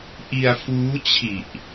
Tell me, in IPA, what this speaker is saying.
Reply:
ʔ i˧ a̯ f uː˦˥ t͡ɕʰ i˨˩ ʔ

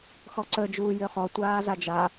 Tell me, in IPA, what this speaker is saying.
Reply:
x ɔ ǀ ə d͡ʒ uː j ø χ ɔ tʷ aː z a d͡ʒ a

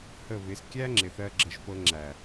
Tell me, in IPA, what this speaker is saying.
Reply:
h ə˦˨ β ɪ˨˦ s kʲ æ˦ ŋ͡ǁ ɪ˨ θ ɜ˧ ɡ͡ǁ ə˨˦ ʒ f ɤ˧ ŋ͡ǁ æ˨

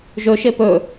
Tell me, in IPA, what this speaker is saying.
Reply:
ʒ ɵ ʃ e p ɵ

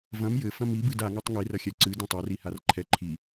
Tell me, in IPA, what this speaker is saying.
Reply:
v ɐ̃ m j ɘ f ɐ̃ m i b ɨ d a ŋ a tˤ ŋ i r ɐ xʲ ɛ ǀ ɨ d ĩ tˤ ɐ r i h a r ǃʰ ɛ ǃʰ i

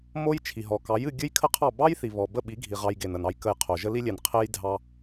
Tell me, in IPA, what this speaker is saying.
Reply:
m o˦ j t͡ʃʰ i˨ ɦ ɔ˨ k ɑ˨˦ j ɨ˧ ɡʲ ɨ˦ j kʰ ə˦ qʰ ɑ˦˨ b ɑ˦ j θ i˨ β ɔ˨ b ə˦˨ ɓ i˨˦ ɡʱ i˨ ʁ ɑ˧ j ɡ e˨ n ə˨ n ɑ˧ j k ə˧ j qʰ o˨ ʒ ə˦ l i˦ lʲ e˨ n qʰ e˦ j dʱ ɑ˦

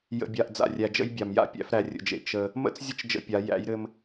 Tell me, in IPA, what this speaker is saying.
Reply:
j ə̰˨ bʲ a˨ ʔ d͡z a̰˨ rʲ æ˨ d͡ʒ ə̰˦ j bʲ a˨ m j a̰˦ pʲ æ̰˦ f ɾ æ˨ rʲ ə̰˨ d͡ʒ ḛ˨ t͡ʃ ə˦ | m ə̰˦ t͡s zʲ ə˦ t͡ʃ d͡ʒ ə̰˦ pʲ a˨˦ j æ̰˨˦ j ɾ ɘ˦ m

